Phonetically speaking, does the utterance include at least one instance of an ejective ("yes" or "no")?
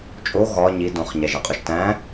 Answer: yes